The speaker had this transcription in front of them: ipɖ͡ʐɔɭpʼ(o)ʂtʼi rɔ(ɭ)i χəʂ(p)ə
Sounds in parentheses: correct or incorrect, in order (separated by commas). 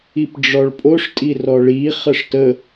correct, correct, incorrect